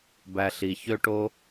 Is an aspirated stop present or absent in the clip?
absent